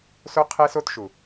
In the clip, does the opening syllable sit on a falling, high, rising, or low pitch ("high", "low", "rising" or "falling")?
high